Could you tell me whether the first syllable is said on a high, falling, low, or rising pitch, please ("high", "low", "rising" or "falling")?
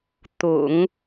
low